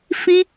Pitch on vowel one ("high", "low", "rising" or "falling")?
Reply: high